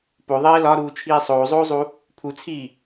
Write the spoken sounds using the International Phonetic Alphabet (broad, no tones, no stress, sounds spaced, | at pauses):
p o ðˤ eː l ɒ ɾ uː t͡ʃʰ iː sˤ oː zˤ oː zˤ u | pʰ u t͡sʰ iː